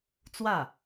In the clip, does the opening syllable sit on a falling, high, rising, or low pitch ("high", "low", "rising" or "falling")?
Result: falling